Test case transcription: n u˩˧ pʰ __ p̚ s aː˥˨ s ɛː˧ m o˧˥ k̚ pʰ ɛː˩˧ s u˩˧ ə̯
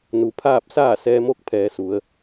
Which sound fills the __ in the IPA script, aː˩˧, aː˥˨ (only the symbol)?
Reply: aː˥˨